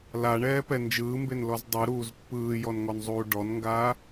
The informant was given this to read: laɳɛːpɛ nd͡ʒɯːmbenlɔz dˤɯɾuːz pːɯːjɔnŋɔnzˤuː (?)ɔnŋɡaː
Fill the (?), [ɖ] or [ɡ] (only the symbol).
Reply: ɖ